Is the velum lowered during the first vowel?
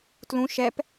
yes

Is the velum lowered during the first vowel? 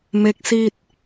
no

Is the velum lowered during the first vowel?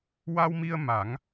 no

